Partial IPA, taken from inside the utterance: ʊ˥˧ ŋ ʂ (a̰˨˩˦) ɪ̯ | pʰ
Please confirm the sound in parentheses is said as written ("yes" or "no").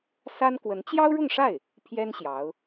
no